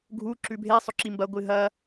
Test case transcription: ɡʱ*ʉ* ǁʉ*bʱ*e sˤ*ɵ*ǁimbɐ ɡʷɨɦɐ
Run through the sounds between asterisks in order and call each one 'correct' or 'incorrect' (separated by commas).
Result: incorrect, correct, correct